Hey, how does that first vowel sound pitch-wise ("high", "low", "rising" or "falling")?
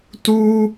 high